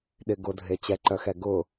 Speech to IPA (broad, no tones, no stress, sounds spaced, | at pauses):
ɗ ɪ ɡ ʊ dʱ e t͡ɕ ɛ ǃ œ x ɛ ɡ ʊ